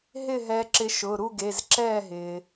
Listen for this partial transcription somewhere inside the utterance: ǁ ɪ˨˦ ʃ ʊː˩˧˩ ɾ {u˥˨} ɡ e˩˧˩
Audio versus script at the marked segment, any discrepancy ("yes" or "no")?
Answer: no